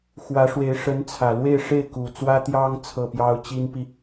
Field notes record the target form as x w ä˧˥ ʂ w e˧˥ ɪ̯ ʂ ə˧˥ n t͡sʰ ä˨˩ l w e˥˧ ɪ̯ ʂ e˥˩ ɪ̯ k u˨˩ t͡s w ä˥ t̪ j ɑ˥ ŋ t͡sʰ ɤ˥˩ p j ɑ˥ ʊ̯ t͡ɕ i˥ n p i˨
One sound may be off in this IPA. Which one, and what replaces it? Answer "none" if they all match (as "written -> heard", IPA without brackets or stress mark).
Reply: none